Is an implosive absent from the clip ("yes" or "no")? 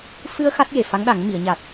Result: no